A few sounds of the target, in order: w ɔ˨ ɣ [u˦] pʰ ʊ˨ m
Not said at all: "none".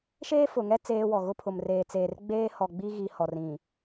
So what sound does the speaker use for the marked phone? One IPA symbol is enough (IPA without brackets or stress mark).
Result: ʊ˦